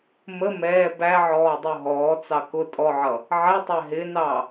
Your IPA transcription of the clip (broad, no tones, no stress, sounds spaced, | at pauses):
m ə m ɛː b æ ʕ ɔː dˤ u ɦ ɔː t͡s ɑ k ʊ tʼ ɔ ʕ ʌ | ʕ ɛ tˤ æ ɦ ɪ n ɑ